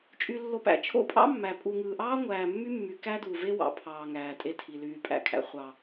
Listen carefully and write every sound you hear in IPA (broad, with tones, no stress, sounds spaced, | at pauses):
t͡ʃʼ y˨ lː o˨ p æ̰˨ t͡ʃʰ o̰˦ pʼ ɑ̰˦ mː æ˨ pʼ u˨ ŋ ɯː˨ ʔ ɑː˦ ŋʷ æː˨ mː y˦ mː y˨ k æ˦ d u˨ v e˦ w ɑ̰˨ pʰ ɑː˨ ŋ æː˨ tʼ e˦ tʰ i˨ l yː˨ pʼ æ̰˦ kʰ æ̰˨ χʷ ɑ˨